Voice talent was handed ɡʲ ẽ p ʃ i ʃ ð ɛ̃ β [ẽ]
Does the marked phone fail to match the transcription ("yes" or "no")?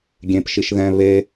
yes